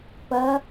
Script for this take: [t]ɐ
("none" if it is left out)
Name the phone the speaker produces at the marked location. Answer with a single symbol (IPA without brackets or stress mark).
p